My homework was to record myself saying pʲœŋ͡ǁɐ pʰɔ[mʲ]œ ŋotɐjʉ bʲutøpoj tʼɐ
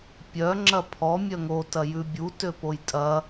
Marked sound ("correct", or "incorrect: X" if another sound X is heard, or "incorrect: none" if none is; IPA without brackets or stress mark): correct